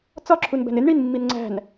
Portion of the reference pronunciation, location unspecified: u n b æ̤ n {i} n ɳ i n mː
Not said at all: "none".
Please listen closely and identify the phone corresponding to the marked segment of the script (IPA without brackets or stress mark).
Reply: ɪ